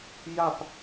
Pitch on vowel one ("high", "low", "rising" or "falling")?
falling